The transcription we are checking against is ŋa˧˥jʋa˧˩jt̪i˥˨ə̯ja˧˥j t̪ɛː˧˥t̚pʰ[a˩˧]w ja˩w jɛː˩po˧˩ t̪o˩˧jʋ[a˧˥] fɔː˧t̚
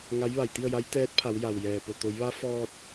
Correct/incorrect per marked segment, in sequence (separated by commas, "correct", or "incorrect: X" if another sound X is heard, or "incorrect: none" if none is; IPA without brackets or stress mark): correct, correct